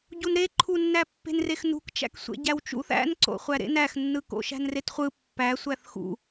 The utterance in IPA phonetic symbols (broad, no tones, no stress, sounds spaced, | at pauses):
ɟ u n ɾ e ǃʰ u nː æ pː e̤ n r e x n ṳ k t͡ʃ æ̰ k sʷ ḛ ɟ æ w t͡ʃ ṵ θ æ̰ n ǀ o̰ χʷ æ ɾ ḛ n æ x nː ɯ k o̰ ʃ æ̤ n r e t χʷ ɯ pː æ sʷ æ θ x ṵ